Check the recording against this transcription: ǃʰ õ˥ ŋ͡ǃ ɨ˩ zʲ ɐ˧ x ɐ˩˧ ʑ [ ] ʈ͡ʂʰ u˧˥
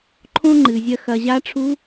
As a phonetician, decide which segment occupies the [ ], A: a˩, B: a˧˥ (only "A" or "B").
B